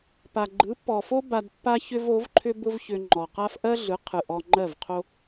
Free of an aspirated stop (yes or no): no